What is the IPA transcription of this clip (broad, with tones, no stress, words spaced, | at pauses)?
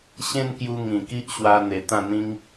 ɕẽ˦nkju˧ ŋĩ˨˩ki˦ʔɕwa˧ n̪e˨˩t̪ã˥˧n̪ĩ˦ŋ